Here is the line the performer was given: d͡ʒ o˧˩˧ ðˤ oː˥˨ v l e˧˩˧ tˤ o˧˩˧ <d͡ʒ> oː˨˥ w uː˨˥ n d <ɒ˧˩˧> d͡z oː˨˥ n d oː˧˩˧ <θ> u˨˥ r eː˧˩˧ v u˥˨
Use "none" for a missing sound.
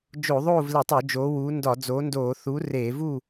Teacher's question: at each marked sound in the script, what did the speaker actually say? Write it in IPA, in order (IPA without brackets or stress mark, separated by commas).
d͡ʒ, ɒ˧˩˧, θ